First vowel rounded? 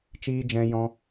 no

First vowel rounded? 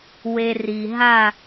no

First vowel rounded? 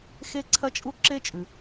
no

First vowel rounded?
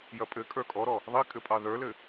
no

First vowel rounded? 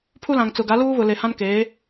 yes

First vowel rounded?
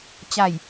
no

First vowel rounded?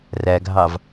no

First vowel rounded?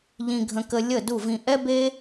no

